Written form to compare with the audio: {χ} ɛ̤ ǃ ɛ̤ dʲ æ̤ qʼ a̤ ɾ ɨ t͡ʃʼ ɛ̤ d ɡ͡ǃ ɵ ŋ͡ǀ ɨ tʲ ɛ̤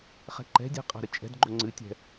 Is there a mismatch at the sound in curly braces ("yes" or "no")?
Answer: no